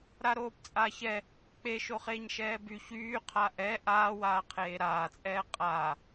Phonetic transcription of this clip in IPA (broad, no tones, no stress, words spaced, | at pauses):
ɾaɾoːpt͡sʼaːçɛ | k͡peʃoχeːɲ ʃɛːby çyː qʰaʔɛ ʔaːwaː qʰeːɾaːt͡sʼɛː qʼa